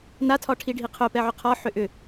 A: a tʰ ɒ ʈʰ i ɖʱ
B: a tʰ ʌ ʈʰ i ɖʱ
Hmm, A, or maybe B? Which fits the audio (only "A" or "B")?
A